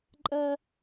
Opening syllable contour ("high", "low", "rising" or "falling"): high